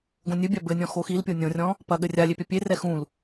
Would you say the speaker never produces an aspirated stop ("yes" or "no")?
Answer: yes